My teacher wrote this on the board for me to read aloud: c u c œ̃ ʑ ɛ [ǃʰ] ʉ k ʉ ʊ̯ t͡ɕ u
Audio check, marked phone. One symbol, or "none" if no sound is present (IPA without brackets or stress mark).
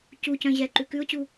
ǃ